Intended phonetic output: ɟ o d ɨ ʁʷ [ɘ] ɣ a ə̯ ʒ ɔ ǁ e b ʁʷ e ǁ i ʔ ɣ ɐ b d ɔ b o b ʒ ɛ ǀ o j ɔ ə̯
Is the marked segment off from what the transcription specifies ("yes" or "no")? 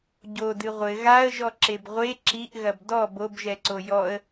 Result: no